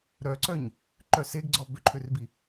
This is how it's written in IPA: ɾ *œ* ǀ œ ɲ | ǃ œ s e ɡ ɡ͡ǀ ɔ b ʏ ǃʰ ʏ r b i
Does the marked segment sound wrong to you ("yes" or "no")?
no